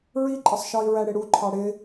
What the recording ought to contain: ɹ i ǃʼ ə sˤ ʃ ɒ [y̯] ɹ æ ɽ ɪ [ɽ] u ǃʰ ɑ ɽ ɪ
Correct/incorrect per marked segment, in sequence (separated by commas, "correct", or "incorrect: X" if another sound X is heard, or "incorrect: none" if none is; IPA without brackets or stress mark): incorrect: i̯, correct